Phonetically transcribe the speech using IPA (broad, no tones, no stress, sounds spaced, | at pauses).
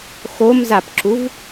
x o m z a p ǁ u v